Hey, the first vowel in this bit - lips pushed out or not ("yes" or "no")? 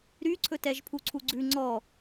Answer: yes